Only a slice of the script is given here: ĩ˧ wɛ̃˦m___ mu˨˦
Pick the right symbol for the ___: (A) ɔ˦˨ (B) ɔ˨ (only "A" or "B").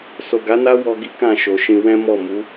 A